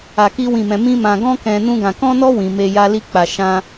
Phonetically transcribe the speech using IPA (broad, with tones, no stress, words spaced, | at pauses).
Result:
a˧ki˦wĩ˦˨mɛ̃˧ mĩ˦mã˧ ɡɔ̃˦kɛ̃˧ nũ˦ɡã˧ kɔ̃˦nɔ˦ wĩ˧me˦ ja˦li˦k͡pa˧ ʃã˦